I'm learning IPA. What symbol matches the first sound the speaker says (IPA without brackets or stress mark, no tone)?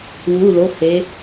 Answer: w